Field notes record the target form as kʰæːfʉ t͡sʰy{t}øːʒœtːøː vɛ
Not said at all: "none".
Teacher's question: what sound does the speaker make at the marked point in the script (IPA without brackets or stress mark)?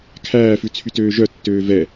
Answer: t